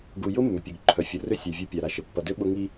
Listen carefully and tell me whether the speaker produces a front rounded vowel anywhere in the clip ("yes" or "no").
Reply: yes